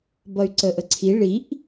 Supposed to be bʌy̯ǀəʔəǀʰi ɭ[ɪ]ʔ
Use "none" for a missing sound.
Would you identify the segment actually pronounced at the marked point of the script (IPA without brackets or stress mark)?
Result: i